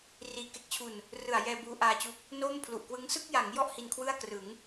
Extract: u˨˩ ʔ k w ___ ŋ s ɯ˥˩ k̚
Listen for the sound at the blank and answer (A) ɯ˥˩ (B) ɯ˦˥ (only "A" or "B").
B